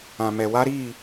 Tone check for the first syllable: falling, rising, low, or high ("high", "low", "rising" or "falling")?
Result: low